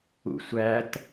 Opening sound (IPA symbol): ṵ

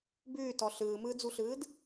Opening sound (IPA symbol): b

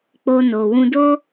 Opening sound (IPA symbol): k͡p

